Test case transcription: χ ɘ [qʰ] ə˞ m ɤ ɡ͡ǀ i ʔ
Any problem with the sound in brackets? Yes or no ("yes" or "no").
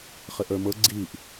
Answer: yes